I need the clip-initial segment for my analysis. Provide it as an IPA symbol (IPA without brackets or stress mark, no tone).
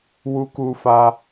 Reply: w